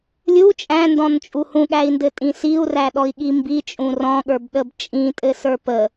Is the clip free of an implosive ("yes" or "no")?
no